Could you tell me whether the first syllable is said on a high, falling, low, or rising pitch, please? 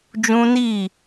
high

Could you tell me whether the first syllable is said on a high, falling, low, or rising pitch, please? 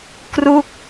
falling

